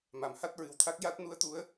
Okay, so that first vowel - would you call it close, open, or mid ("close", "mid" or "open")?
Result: open